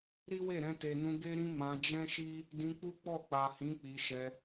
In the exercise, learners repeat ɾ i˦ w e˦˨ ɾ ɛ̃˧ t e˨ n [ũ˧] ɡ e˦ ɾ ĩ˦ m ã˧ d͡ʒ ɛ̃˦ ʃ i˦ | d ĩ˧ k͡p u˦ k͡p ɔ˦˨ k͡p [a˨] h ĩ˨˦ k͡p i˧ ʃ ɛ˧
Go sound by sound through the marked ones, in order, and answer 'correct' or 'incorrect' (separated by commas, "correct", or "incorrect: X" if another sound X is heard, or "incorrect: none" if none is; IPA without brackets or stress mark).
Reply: correct, correct